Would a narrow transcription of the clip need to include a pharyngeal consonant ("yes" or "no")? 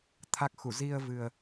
no